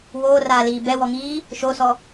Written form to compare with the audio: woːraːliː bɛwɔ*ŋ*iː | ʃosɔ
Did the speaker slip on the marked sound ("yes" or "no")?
no